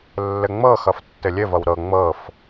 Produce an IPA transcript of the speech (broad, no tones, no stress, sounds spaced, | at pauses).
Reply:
lː ɘ ŋ͡m ɤ x ʌ f tː ɘ lʲ ɘ v ʌ w ɾ ɤ ŋ͡m ɤ f